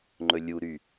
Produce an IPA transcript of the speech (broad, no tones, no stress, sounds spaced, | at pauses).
ŋ͡ǃ ɵ lʲ u ɾ y